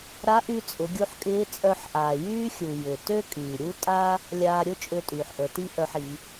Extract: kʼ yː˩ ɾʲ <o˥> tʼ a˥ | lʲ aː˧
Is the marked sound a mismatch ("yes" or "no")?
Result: yes